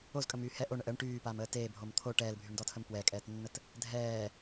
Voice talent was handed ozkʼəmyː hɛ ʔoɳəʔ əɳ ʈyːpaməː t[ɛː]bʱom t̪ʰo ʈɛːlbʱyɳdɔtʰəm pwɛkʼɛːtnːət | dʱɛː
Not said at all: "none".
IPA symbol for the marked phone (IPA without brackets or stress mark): eː